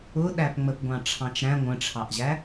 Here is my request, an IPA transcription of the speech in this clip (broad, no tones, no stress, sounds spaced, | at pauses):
ʊ ɗ æ p ŋ͡m ə p ɡʷ ɑ̃ ʈ͡ʂʰ ɑ̃ t͡ʃ ɾ æ̃ ŋʷ ə̃ ʈ͡ʂʰ ɑ ʔ ʑ æ